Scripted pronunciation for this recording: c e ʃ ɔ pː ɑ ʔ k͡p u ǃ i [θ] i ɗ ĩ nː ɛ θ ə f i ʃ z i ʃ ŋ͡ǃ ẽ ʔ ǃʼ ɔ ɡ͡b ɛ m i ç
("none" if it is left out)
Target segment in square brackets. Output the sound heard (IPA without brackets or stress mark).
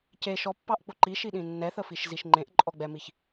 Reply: ʃ